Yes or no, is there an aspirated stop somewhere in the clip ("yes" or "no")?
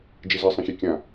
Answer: no